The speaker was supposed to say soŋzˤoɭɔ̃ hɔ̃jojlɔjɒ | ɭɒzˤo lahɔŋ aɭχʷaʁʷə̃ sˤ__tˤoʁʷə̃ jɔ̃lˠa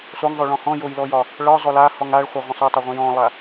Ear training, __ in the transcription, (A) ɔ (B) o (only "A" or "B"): B